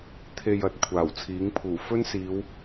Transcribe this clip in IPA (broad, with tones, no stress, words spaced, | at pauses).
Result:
t̪ʰe˧j ɐ˨t̚kʷʰaː˨˩wt͡sʰiː˨˥ŋpʰuː˨˩ fɵ˥nsiː˨˧w